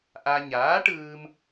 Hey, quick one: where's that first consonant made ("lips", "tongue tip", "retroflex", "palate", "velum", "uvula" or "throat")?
throat